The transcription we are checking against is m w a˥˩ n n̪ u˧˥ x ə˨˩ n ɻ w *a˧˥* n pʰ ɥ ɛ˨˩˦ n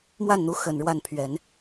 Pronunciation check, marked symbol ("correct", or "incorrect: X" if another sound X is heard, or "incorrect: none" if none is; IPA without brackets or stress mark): incorrect: a˥˩